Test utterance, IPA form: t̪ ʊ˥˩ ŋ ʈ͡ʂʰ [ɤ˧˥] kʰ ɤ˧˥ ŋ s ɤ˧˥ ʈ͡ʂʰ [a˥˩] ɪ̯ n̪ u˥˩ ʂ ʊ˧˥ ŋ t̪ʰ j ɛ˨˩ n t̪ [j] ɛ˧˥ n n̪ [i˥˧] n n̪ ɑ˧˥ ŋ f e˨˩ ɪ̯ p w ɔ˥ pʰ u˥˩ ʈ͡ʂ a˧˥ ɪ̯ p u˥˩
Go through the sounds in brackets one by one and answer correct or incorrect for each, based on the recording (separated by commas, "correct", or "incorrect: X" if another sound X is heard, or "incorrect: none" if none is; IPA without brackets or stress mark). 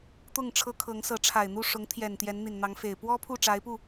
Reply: incorrect: ɤ˥, incorrect: a˨˩, correct, incorrect: i˨˩